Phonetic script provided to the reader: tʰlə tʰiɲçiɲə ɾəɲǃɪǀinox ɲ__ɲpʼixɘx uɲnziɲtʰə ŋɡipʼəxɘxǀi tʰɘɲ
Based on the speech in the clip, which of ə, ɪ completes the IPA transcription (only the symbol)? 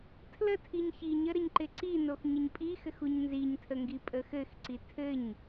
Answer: ə